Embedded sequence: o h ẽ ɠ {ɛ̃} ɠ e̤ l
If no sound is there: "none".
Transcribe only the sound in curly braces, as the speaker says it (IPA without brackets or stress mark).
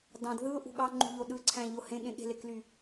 ẽ